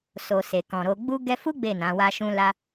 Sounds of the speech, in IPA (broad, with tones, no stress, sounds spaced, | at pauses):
s o˨ s e˨ k ɔ̃˨ ɾ o˧ ɡ͡b u˦ ɡ ɛ˦ f u˦ ɡ͡b e˦˨ n ã˨˦ w a˦ ʃ ũ˦ l a˧